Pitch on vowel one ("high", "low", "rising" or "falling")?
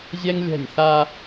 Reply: high